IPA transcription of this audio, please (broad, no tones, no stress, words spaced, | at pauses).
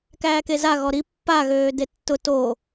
kæːkeza ɣɔɾi pːa ɣøːdetːʊ to